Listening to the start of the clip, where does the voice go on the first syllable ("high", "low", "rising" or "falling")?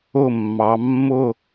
falling